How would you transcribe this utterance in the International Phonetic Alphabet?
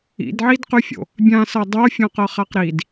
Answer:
ḭdʕidqʉfʲo̰ | bʲãsɤ dˤofʲɔ̃qɤχaq ɾid

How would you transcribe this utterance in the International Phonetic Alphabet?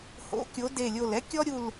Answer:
ho̰˨˦ kʲo˨˦de˧˩lʲo˧˩lɛ˥ kʲɔ˥ɾʲu˧˩l

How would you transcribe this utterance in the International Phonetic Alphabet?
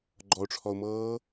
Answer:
ɡ͡ǃɔʊ̯ʈ͡ʂʰɔʊ̯mɤː

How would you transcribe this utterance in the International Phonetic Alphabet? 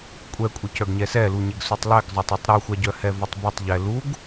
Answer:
kʷʼɛkʷʼəcœɡ ɲɛsɛluɲeɡ sutˤlɛɡzˤœtˤœtˤ ɾuxʷaɟœ hɛvətˤbetˤ ʎɛluɡ

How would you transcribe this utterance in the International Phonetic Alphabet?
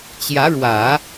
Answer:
t͡ɕjä˧˥ɻwä˨˩˦

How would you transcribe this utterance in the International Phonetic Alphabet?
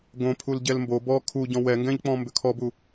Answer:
ɡõ pʰulɟɛlmbo bɔ kʰuɟɔ̃ wɛŋɡɛ̃ʎk͡pɔ̃ mbʏkʰɔbu

